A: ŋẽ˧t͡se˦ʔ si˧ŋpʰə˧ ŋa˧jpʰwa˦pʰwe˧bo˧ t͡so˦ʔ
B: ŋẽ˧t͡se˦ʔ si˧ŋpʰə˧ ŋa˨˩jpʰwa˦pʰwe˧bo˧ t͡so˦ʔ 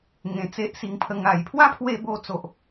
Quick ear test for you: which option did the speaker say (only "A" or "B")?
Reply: B